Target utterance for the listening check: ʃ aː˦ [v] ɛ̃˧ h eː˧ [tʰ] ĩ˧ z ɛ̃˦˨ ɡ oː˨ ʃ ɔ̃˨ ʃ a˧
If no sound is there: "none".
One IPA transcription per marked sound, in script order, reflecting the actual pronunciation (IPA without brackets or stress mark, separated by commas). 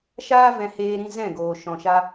v, ɾ